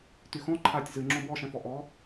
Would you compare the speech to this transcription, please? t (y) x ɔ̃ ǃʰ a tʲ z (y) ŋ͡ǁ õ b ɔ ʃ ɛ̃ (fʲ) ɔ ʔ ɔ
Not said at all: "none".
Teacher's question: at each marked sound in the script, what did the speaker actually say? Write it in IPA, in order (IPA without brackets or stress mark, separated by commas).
y, ɨ, f